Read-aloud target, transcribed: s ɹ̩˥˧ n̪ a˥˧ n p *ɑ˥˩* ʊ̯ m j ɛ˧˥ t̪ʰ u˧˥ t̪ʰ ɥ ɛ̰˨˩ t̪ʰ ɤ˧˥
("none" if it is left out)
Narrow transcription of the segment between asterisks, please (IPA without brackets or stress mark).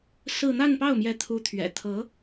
ɑ˥˩